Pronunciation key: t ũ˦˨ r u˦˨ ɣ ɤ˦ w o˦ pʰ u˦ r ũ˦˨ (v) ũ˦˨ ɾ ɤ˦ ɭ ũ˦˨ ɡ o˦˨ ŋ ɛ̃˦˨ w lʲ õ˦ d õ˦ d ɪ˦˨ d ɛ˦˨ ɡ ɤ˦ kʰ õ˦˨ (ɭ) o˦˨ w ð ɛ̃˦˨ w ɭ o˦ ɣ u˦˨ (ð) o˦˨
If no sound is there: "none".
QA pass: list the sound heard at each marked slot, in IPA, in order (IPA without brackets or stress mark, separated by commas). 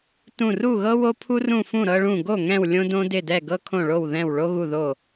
f, ɭ, ð